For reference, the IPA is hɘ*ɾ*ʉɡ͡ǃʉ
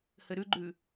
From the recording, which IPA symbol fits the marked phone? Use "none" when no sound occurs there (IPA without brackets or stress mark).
ɾ